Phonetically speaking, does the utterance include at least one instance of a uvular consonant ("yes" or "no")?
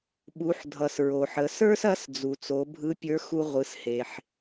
yes